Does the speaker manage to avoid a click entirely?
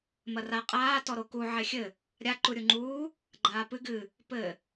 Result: no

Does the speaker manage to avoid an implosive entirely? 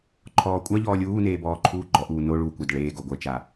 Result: yes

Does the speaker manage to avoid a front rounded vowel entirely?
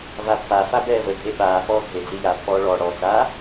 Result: yes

